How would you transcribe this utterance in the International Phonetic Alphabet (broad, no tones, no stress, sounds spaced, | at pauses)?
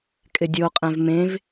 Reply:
kʼ ɪ dʲ o qʼ ɛ̃ v m ẽ v